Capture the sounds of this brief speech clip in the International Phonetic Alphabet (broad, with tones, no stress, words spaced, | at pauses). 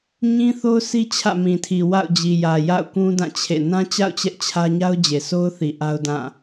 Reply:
ɲĩ˦θo˦ʊ̯si˦ t͡ɕʰä̰˦˨mĩ˨tʰi˨ wa̰˦˨ʊ̯d͡ʑi˨jä˨ ja̰˦˨ʊ̯kũ˦dã˦˨ t͡ɕʰḛ˦˨ nã˦t͡ɕa̰˦˨ʊ̯ t͡ɕɛ˦ʔt͡ɕʰä˦ ɲa˦ʊ̯d͡ʑe˨so˦ʊ̯θi˨ ʔa˦ʊ̯dã˦˨